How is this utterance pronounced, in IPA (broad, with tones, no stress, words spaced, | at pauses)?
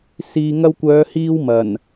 siː˨ŋɐ˧wkʷœː˨˧hiː˧w mɐ˨˩n